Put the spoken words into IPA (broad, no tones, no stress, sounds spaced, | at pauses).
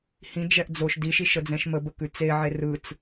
h ĩ d͡ʒ ɛ ʔ d͡z o ʃ d i ʃ i ʃ ə d͡z ɛ̃ ʃ m ə b ə k ʉ t͡s e ʕ e r ɯ t͡s